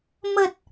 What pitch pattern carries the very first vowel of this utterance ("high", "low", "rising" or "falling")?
low